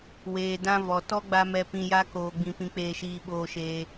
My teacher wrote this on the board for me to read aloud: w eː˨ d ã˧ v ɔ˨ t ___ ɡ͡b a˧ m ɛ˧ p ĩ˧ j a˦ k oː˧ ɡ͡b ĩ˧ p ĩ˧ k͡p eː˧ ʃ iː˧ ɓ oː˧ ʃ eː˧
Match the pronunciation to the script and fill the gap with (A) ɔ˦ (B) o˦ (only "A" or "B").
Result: A